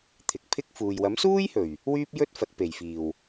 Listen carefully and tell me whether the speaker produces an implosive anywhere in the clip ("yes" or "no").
no